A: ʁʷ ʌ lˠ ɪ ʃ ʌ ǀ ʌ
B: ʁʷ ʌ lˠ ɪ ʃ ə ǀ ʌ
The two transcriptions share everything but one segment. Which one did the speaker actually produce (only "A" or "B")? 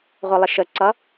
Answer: B